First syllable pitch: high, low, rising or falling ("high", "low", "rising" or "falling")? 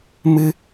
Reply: high